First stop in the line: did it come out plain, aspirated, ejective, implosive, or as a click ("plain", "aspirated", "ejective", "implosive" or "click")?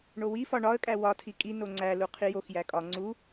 ejective